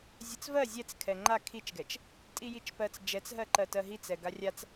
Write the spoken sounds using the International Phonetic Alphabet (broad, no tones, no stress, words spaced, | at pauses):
zʲɜt͡svɜ zʲɛt͡s kʰɛŋ͡ǃa kʰit͡ʃɡɛt͡ʃ | tʼijit͡ʃpɜt͡s d͡ʒɛt͡sɦɜǃɜ tɜɦit͡sɛ ɡarʲat͡s